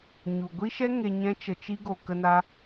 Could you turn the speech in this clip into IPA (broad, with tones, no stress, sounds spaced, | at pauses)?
ɲ u˨ ɡʷ i˦ ʃ ɛ˦ ŋ e˧ ɲ ɛ̃˦ t͡ʃ ə˧ t͡ʃ i˦ ɡ o˧ k ə˦ n a˦